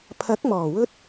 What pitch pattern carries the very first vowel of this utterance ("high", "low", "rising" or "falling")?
rising